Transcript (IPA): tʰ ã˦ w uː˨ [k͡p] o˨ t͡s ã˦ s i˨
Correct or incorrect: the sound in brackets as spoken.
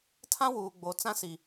incorrect: ɡ͡b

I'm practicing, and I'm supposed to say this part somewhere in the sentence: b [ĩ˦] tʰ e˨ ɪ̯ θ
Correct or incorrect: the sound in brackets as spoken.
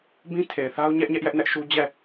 correct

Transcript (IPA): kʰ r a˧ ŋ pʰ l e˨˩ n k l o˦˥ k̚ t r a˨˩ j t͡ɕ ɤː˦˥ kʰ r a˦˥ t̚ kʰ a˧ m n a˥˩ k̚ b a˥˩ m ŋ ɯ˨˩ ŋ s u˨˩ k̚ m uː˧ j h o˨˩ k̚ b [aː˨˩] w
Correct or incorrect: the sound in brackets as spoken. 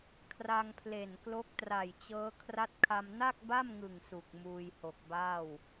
incorrect: aː˥˩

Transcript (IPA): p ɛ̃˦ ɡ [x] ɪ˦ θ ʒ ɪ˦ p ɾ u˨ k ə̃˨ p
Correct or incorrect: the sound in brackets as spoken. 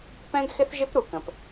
correct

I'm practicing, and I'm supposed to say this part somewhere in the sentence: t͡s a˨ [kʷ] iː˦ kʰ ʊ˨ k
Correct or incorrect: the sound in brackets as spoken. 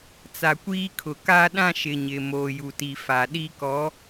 correct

